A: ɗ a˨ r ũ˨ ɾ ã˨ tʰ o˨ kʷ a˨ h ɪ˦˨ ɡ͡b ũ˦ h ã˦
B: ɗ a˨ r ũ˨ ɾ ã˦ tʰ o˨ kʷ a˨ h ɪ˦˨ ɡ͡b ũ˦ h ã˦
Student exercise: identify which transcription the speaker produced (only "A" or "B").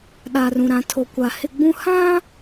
A